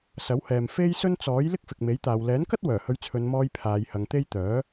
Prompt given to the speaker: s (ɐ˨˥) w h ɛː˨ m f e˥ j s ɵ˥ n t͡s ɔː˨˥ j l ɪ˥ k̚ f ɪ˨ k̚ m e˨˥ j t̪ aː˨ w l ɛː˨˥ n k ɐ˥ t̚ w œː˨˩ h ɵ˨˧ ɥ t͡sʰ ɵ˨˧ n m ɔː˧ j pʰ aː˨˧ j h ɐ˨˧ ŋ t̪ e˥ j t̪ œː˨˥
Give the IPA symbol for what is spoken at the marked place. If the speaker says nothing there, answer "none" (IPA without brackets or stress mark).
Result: ɐ˨˥